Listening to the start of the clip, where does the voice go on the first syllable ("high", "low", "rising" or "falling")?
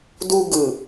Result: high